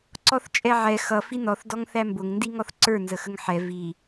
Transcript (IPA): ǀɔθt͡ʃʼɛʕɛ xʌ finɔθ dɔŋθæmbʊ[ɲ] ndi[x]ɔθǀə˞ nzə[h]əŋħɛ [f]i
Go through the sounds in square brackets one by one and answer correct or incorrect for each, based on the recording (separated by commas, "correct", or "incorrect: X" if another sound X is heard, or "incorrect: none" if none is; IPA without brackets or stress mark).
incorrect: ŋ, incorrect: ŋ, incorrect: x, incorrect: v